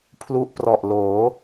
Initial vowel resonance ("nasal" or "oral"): oral